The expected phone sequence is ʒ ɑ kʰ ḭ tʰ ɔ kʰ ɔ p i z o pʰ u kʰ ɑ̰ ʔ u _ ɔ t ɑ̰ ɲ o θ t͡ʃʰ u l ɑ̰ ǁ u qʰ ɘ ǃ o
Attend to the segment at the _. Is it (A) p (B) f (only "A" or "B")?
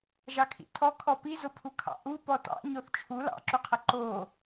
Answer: A